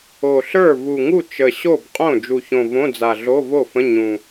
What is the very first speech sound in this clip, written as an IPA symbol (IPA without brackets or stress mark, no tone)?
o